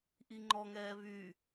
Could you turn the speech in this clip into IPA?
ʔ i ŋ͡ǃ ɔ ŋ ɛː β y

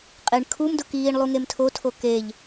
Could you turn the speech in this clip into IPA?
qʼ e ɳ kʰ u m d ʊ k iː ɳ lˠ u ŋ e m tʰ o tʰ o k e ʎ

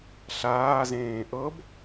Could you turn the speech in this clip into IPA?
ɬ aː z ẽː ʔ ɤ b

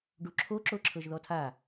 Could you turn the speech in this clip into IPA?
ɖ u ǁʰ o ǁ o ǁʰ ɤ ʒ ð ɔ tʰ a

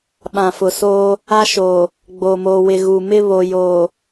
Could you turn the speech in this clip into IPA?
ɓ ã˨ f ʊ˨ s o˦ | a˦ ʃ o˨ | ɡ͡b oː˨ m oː˨ w ɪ˨ ɣ u˨ m ɪ˦ β o˨ j o˨

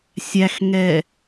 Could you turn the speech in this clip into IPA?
sʲ æ x ŋ ɛ

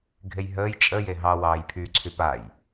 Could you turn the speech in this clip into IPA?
ɡʱ e j ɦ əː j t͡ʃʼ ə j e ɦ ɑ w ɑː j pʰ y ǀʰ y p a j

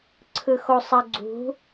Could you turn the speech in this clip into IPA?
ǀʰ ɯ x o sˤ ə ɡ͡ǀ ṳ

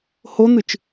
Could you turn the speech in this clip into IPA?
h o n̪ ɨ t͡ʃ

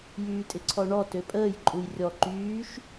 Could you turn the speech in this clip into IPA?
j yː tʼ ɪ ǀʰ ɔ ɳ ɔ t ø pʼ əː j ǃʼ u j rʲ ɔ ǃ yː ʃ

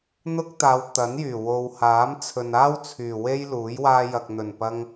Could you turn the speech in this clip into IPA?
n̪ ʊ˥ k̚ t̪ aː˨˧ w t̪ ɐ˨˥ n j yː˨˩ w o˨ w h aː˨˥ m t͡sʰ ɵ˨ n aː˥ w t͡sʰ yː˨˩ w e˥ j l uː˨˥ j w aː˧ j ɐ˨ k̚ n̪ ɵ˨˩ n p ɐ˧ ŋ

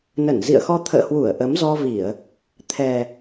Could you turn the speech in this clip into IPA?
n ə˧˩ n z ḭ˧˨ ə̯ x ɔ˧ t̪ʰ ə̰ː˧˨ h w u˧˩ ə̯ ʔ ə˨˦ m z ɔ˧ v i˧˩˨ ə̯ | t̪ʰ ɛ˨˩

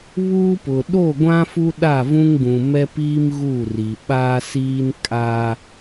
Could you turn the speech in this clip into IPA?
β uː˦ p ʊ˨ ɗ o˦˨ ɡʷ ã˦ f u˦ ɗ a˦˨ v ũ˦ ŋ ɡ ũ˨ m ɛ˦ p iː˦ m ɣ u˦˨ r i˨ ɓ aː˦ s iː˦ n kʼ aː˦

